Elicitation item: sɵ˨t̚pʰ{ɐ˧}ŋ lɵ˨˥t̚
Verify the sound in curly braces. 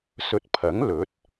incorrect: ɐ˨˥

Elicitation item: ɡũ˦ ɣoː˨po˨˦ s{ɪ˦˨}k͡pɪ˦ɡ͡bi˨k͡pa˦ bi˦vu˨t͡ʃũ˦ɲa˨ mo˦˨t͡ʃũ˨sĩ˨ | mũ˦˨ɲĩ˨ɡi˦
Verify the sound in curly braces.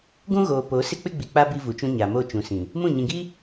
incorrect: ɪ˦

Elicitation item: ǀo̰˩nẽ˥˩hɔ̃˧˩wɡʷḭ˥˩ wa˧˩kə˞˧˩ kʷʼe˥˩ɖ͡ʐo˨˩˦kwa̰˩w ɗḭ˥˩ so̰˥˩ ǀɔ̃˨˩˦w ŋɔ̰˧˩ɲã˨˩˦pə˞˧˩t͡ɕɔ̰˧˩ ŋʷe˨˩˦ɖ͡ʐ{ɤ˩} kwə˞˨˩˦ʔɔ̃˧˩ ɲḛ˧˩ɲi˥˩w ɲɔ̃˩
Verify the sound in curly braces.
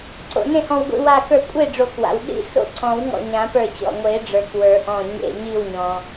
incorrect: ə˞˩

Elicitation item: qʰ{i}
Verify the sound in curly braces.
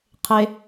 incorrect: e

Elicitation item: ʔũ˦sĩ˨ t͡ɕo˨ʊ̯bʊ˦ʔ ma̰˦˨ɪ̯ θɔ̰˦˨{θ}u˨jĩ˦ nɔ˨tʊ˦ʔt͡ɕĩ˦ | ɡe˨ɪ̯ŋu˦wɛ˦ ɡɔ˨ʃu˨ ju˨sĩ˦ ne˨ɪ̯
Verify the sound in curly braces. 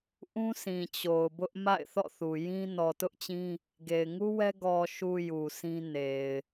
correct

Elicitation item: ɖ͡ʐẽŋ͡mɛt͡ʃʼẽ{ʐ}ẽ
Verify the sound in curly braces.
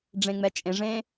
correct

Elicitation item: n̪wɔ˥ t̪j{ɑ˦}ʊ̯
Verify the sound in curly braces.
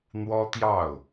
incorrect: ɑ˥˩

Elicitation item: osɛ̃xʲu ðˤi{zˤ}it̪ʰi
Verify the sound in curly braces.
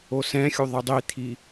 incorrect: dˤ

